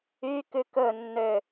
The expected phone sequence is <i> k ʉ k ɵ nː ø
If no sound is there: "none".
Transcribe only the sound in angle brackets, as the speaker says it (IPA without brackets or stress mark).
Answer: y